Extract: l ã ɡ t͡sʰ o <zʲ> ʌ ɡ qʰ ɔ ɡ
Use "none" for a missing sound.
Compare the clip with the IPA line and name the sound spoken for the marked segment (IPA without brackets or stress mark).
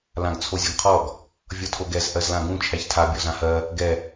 zʲ